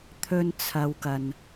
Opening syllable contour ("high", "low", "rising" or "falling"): high